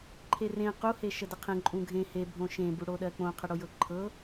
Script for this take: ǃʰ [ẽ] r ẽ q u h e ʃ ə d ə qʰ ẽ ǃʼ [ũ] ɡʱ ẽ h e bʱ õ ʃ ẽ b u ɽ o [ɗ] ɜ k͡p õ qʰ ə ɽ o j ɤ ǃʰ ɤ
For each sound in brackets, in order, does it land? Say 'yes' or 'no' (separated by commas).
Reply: no, yes, yes